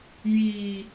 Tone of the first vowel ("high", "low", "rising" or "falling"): low